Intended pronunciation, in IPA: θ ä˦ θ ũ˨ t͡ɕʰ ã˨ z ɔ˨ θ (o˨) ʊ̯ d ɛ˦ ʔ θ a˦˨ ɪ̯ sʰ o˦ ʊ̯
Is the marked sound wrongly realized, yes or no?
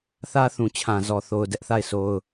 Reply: no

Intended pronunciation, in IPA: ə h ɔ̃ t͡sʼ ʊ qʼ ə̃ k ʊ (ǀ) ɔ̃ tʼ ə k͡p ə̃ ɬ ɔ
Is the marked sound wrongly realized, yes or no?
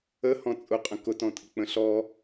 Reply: yes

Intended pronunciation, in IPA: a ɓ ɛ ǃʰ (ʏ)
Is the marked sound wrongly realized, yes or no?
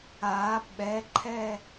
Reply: yes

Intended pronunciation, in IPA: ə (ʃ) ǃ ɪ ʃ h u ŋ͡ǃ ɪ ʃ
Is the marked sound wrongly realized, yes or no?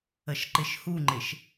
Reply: no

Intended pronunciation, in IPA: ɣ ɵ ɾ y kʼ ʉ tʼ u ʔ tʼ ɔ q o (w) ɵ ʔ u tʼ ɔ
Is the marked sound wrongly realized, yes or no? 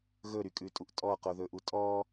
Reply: yes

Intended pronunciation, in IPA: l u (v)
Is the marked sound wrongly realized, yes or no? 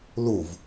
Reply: no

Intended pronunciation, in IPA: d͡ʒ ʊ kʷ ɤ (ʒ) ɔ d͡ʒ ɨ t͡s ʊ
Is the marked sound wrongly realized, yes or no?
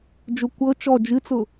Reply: yes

